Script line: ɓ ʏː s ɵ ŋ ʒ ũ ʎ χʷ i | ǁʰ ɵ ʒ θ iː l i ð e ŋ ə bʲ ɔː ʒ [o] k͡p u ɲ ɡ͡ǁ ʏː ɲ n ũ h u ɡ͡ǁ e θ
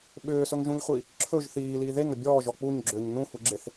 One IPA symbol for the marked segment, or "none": ɔ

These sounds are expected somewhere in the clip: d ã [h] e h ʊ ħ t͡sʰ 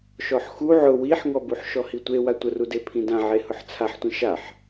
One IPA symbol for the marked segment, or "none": ʕ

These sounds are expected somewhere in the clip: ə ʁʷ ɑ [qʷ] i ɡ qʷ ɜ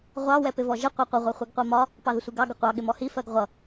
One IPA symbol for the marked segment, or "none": χʷ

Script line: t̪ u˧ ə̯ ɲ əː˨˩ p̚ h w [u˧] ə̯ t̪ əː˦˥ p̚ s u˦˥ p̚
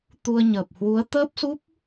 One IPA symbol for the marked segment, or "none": u˨˦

